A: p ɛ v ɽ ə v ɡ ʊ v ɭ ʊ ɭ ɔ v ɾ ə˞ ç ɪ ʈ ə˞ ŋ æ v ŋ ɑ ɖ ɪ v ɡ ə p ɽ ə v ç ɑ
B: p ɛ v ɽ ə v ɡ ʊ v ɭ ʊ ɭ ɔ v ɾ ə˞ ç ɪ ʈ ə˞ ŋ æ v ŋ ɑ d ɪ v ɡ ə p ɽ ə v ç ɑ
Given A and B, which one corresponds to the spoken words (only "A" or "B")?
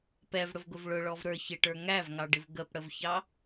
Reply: A